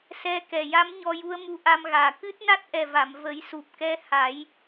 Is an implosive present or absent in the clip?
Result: absent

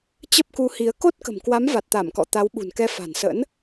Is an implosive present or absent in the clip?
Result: present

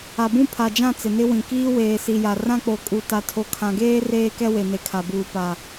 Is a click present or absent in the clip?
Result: absent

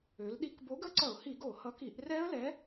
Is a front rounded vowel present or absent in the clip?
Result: present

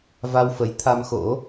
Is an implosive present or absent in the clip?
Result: absent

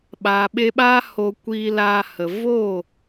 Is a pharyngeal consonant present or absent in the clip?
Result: absent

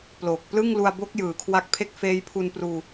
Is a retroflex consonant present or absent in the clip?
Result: absent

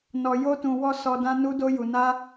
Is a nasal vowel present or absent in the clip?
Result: present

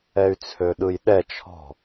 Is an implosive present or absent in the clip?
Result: present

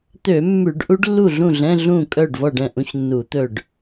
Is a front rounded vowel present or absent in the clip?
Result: present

